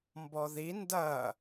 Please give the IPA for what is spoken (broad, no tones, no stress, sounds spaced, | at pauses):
m b ɔ ð i n d ɐ